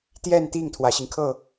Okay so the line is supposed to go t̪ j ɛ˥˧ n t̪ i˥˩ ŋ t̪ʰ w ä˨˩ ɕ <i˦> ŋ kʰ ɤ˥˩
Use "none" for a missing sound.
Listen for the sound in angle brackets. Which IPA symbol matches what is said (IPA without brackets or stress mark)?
i˦